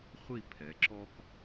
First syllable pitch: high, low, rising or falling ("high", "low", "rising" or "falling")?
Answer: falling